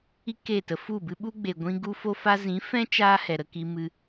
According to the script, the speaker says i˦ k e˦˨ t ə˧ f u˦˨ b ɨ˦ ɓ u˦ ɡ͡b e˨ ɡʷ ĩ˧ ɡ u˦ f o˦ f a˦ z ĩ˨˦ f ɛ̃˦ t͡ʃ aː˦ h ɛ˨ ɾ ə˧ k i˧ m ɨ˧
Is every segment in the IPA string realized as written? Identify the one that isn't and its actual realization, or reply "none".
none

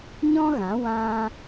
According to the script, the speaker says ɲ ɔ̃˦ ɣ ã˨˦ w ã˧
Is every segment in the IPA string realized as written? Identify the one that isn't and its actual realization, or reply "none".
none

